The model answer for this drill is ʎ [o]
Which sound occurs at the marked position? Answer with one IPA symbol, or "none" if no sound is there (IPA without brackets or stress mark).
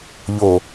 o